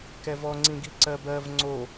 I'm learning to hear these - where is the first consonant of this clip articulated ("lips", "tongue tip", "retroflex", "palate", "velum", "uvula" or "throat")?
velum